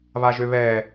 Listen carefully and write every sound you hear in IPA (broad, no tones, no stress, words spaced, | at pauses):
βaʒøβɛː